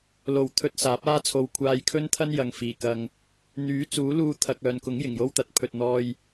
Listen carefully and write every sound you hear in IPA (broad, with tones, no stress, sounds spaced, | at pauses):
l o˨˩ w t̪ʰ ɵ˧ t̚ s aː˨˥ p̚ aː˥ t͡sʰ o˧ w kʷʰ aː˧ j kʰ ɵ˥ n t̪ʰ ɐ˥ n j ɐ˨ ŋ f iː˨˩ k ɐ˧ ŋ | n̪ yː˨˥ t͡s uː˨˥ l uː˧ t̪ʰ ɐ˨ k̚ œː˨ n k ʊ˨˥ ŋ j ɪ˨˩ ŋ j o˥ w t̪ ɐ˨˥ t̚ pʰ ɵ˨ t̚ n̪ ɔː˧ j